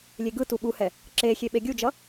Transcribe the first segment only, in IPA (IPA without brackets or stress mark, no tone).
lʲ